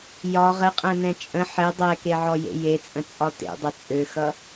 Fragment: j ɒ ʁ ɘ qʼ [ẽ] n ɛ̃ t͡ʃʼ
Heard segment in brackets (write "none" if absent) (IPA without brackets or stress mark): ɛ̃